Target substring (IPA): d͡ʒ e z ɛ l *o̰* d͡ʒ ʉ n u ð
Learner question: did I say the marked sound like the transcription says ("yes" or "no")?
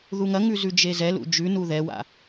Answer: no